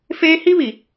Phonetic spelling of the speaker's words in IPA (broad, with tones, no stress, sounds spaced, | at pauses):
f eː˦ h i˦ β i˨